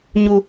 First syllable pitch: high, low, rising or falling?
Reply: high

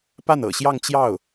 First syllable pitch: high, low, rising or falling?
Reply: falling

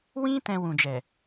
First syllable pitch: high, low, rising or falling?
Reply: high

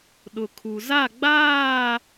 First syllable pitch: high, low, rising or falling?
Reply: low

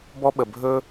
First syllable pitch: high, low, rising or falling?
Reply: high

